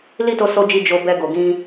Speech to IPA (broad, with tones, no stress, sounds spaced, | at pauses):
l i˦ t o˧ s o˧ d͡ʒ i˧ d͡ʒ o˧ b ɛ˧ ɡ o˨ ɡ ĩ˧